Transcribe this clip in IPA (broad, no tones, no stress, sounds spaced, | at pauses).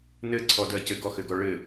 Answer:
n ɘ ǀʰ ɔ d ɜ c ɘ ɡ ɔ x ɘ ɡ ɔ ɭ ɘ